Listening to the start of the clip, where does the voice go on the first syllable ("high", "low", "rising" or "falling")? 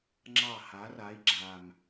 falling